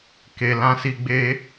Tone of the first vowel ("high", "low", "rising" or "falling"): low